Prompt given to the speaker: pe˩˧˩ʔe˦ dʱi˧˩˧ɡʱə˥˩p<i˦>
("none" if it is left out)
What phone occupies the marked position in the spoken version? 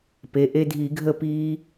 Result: iː˦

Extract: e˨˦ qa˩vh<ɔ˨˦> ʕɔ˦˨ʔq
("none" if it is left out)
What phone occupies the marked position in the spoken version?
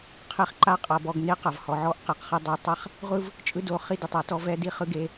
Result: ɔ˩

